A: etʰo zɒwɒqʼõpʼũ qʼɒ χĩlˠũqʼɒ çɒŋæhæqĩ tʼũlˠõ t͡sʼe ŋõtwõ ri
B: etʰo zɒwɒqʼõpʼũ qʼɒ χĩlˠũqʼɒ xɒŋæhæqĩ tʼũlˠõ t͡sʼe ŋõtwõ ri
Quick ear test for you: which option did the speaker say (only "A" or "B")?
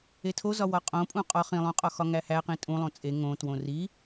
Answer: B